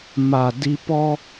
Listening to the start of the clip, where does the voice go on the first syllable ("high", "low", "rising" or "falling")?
low